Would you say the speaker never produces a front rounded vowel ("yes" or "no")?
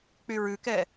no